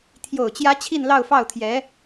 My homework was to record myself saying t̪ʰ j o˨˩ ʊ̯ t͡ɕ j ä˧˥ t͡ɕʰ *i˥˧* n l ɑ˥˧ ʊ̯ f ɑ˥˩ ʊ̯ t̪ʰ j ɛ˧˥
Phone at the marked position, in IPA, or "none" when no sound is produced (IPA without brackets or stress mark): i˥˧